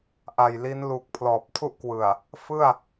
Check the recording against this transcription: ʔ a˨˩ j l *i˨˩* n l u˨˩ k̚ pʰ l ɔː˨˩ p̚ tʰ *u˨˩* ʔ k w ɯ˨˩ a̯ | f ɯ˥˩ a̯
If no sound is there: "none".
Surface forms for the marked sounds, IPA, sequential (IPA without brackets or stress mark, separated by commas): i˦˥, u˥˩